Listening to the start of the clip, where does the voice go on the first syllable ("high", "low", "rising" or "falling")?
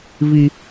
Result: high